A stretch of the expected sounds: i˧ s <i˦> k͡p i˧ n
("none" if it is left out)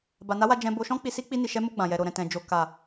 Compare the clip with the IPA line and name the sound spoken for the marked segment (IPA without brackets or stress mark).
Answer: i˦